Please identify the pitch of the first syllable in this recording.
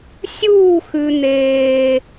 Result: falling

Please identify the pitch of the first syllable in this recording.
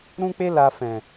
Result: high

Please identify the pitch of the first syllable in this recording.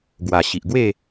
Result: low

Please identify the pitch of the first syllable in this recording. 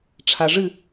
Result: low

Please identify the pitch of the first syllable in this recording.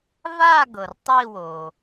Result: falling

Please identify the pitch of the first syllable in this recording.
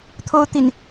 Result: high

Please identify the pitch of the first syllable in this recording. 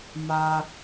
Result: high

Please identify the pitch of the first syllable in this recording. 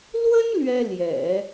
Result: high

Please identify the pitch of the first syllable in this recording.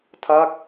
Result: falling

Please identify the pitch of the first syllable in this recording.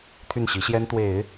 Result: falling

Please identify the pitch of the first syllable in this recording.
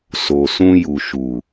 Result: low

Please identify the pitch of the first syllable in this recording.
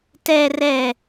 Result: low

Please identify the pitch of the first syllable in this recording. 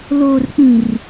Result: low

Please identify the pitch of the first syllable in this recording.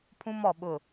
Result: high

